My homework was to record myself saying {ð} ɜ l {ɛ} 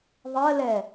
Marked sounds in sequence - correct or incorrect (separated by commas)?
incorrect, correct